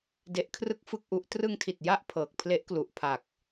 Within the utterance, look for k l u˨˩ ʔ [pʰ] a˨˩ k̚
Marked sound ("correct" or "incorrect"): correct